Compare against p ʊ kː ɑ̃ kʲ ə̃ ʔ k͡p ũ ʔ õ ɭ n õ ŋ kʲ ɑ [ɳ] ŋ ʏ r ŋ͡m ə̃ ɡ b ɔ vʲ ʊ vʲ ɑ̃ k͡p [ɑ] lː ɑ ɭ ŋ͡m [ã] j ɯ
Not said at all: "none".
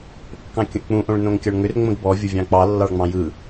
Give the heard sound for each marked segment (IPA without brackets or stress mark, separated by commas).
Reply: ɳ, ɑ, ɑ̃